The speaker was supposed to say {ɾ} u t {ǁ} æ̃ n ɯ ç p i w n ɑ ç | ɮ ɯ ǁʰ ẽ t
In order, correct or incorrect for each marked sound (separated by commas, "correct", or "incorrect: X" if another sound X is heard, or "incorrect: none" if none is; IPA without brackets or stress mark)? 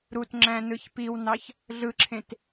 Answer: correct, incorrect: ŋ͡ǁ